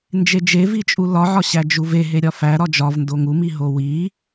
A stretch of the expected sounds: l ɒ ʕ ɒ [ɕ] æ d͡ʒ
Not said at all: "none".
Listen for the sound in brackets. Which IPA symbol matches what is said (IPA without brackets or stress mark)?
ɕ